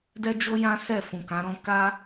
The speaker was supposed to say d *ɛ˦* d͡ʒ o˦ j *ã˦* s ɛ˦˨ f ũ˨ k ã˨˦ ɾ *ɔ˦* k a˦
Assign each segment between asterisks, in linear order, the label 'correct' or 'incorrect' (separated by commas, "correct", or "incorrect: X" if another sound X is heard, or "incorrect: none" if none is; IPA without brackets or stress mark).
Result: correct, correct, incorrect: ɔ̃˦